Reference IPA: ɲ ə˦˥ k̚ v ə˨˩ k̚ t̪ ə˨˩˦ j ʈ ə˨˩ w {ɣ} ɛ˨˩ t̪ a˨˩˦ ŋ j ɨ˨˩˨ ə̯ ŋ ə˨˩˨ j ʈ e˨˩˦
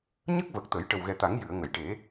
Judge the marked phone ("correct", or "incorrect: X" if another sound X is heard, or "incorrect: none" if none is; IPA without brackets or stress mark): correct